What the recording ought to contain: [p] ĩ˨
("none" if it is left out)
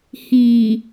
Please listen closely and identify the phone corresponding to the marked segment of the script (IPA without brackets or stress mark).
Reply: h